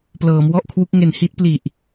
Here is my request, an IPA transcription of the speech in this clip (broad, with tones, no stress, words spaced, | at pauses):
plɤː˩˦m wɔ˥˩ʔkʰwu˦˥k̚ ŋe˨˩nhi˦˥t̚ pli˨˩ʔ